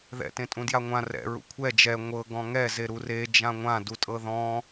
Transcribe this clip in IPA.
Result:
ð ɛ̰ t ẽ tʼ ũ d j a ŋʷ ã r ɛ̰ ɹ ṵ kʷʰ ɛ d͡ʒ ɛ ŋʷ ɤ ɡ ɔ̃ ŋ ɛ z e ɾ u r e d͡ʒ ã ŋʷ ã d u tʼ ɤ ð ɔ̃

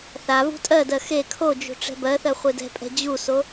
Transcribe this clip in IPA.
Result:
θ a v ṳ tʼ ɜ d ɜ x e kʰ o d͡ʒ ṳ ʈ͡ʂ ɛ̤ b ɜ θ ɜ χʷ e d ɛ̤ pʼ ɛ̤ d͡ʑ u s o

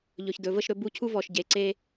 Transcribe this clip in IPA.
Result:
ʎ ɵ˨ ç d ɵ˨ v ə˦˨ ʃ ɾ ɵ˦ b u˦ cʰ u˦ v ɔ˨ ʃ ɟ e˨ ǀ e˦

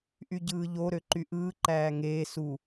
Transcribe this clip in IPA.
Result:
ʔ y ɟ ɯː ʎ o ɾ ø ǃ y ʔ ɯː ǃ æː ŋ eː s u

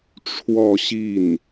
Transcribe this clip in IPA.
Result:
ʈ͡ʂʰ w ɔ˥˧ ɕ i˥˩ n

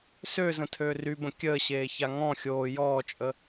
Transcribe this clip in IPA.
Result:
s ø z ə̃ tʰ øː r y b ə̃ kʲ əː ɕ eː ç a ŋ ɔ̃ xʲ oː j ɔː t͡ʃʼ ə

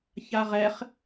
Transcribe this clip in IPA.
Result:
ç a ʁ ɛ χ

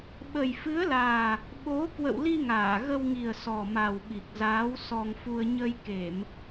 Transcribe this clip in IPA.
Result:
ɓ ə˨˩ j f ɨ˨˦ ə̯ l aː˨˩ | ɓ o˨˦ k w ə̰˧˨ w l i˧ ŋ aː˧˩ ɣ ə˧ w ŋ i˨˩ ə̯ s ɔ˨˩ m a˨˩ w ɓ i˨˩ k̚ z aː˨˦ w s ɔ˧ ŋ f u˧ ə̯ ɲ ə˧ j k e˧˩˨ m

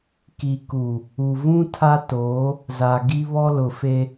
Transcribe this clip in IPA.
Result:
k i˨ k u˨ | u˨ v ũ˦ tʰ a˦ t oː˨˦ | z a˨ ɡ i˦ β ɔ˦ l ʊ˨ f e˦

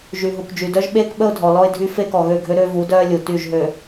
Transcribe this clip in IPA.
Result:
ʒ y˨ ɦ u˨ k d͡ʒ y˨ d œ˦ ʒ ɓ eː˦ k ɓ ə˦ ʊ̯ dʱ ɔ˨ l ɔ˦ ɪ̯ dʱ y˦ f e˦ k ɔ˨ ɣ ø˦˨ ɡʱ ø˦ ɾ ø˦ v u˨˦ d œː˦ lʲ u˨ t y˦˨ ʒ ɦ ø˨

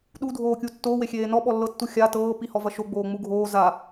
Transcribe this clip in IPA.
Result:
ɗ u dʱ oː kʲ u tː oː w e xʲ eː n ɔ ɓ ɔ lː ɤ tː u xʲ a t ɤː p i h ɔ v ɐ ʃ o ɡ͡b oː ŋ͡m u ɡʱ oː z a

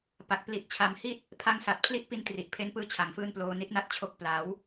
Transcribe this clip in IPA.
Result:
p a˨˩ k̚ p l i˨˩ t̚ t͡ɕʰ a˩˦ m h i˦˥ t̚ | pʰ a˥˩ ŋ s a˨˩ t̚ pʰ l i˥˩ ʔ p i˧ n t r i˨˩ ʔ pʰ e˦˥ n p ɯː˦˥ t͡ɕʰ a˨˩ ŋ f ɯː˥˩ n p l oː˧ n i˥˩ t̚ n a˥˩ t̚ t͡ɕʰ o˦˥ k̚ p l a˩˦ w

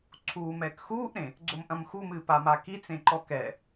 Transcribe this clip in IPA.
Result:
ǀʰ uː m ɛ k x uː ʔ ɾ ẽ | ɡ͡ǀ o m ʔ ɐ̃ m x u m ɨː p a m a k i t͡s ẽ ǃ ɔ k ɛ

